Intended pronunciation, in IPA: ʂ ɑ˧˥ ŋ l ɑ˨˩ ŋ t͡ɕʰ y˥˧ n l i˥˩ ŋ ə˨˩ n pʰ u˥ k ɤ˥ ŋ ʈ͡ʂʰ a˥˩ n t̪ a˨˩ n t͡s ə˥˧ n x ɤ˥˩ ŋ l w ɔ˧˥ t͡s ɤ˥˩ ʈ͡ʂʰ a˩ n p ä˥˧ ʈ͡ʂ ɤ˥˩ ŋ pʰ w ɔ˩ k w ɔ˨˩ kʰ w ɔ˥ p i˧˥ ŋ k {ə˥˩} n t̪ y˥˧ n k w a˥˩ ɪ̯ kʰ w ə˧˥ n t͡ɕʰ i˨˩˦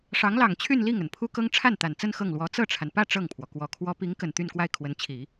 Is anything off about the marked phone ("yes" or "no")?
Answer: yes